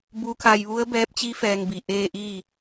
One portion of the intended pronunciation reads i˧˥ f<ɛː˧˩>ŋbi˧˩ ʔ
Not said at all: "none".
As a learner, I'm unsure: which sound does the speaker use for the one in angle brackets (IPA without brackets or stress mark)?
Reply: ɛː˧